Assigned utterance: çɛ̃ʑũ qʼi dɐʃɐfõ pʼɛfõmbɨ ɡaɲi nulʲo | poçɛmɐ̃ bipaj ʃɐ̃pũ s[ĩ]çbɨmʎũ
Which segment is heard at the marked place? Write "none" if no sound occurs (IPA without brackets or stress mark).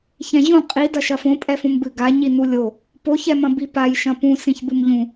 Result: ĩ